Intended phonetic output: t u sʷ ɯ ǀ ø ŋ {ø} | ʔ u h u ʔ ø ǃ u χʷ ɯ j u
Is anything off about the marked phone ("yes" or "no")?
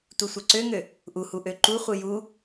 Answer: no